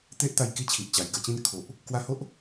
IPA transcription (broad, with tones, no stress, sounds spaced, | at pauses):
t̪ e˦ ʔ t̪ a˧ j k i˥˧ t͡ɕʰ i˨ ʔ t͡ɕ a˨˩ j ɡ ə˥˧ t͡ɕ ĩ˥˧ n kʰ o˨ ʔ | k w a˧ h o˦ ʔ